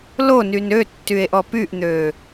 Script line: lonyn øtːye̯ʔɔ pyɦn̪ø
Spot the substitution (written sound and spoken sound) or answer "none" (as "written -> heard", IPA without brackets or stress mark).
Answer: ɦ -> ʔ